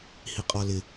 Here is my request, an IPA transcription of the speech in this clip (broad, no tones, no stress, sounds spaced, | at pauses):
h i qʼ ɔ l ɪ